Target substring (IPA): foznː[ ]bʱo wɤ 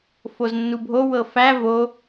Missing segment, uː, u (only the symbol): u